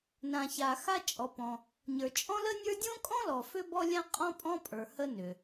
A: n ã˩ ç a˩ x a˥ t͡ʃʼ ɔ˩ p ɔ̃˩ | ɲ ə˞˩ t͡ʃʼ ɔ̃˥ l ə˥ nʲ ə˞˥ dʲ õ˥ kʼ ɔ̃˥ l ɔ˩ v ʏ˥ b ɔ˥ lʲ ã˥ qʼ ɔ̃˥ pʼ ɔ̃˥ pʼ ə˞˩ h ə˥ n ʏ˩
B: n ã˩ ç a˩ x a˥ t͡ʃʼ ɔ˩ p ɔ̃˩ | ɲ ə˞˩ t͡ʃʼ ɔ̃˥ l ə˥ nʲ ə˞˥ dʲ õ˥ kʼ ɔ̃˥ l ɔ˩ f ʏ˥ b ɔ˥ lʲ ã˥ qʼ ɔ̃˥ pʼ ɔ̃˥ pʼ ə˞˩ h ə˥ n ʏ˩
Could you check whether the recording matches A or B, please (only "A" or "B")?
B